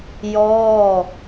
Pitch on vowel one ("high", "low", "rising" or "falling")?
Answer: falling